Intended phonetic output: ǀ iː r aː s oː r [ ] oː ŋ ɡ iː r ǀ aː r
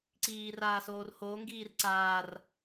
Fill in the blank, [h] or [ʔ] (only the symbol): h